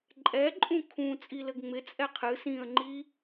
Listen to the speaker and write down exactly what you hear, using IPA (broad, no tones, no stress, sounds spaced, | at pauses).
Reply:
ǃʼ ɛ ǃʼ ũ kʰ ũ t͡sʼ i l ɘ ɡ ŋ͡m ɪ t͡sʼ ɛ qʰ ɨ s ĩ ə̯ ŋ͡ǃ i